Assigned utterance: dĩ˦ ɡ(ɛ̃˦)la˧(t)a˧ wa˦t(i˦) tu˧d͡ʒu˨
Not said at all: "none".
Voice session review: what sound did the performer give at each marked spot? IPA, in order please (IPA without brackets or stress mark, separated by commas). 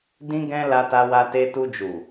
ɛ̃˦, t, e˦